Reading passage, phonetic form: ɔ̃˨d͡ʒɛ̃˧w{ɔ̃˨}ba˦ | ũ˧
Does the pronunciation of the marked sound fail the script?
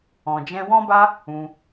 yes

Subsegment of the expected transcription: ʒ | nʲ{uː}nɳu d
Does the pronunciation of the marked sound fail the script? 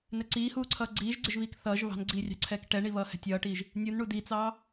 yes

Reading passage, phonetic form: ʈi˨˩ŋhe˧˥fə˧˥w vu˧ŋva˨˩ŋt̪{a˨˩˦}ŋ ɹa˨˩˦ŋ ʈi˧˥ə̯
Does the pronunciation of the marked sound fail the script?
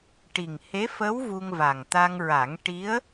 yes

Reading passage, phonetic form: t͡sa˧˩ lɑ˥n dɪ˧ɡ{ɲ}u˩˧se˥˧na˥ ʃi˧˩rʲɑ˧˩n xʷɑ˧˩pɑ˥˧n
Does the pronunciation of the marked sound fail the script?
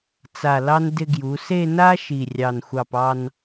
yes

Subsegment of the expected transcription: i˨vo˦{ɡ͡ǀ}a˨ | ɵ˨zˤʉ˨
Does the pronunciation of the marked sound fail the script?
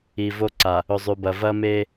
yes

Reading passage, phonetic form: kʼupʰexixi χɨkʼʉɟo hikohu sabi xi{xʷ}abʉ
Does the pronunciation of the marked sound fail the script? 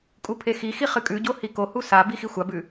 no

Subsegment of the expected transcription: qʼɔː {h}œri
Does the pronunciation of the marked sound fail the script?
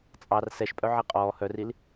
no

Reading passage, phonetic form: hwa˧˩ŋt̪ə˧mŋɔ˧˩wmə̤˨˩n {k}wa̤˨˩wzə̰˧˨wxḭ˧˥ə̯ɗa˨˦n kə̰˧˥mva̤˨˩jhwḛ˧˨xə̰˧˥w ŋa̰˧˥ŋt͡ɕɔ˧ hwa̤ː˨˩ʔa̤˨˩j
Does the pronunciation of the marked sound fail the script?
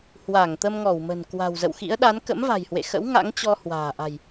no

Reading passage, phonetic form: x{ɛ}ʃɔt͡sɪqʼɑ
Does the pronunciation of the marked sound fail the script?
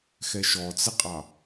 no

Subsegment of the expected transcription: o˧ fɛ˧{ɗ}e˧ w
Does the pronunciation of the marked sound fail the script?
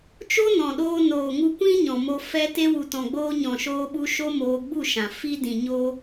yes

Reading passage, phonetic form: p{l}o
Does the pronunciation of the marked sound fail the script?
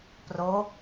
yes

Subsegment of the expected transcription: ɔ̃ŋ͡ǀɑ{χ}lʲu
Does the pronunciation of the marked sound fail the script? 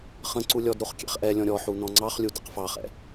no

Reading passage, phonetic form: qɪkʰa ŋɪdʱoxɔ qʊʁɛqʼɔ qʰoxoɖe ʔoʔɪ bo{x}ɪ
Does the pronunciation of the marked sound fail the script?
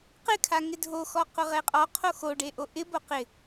yes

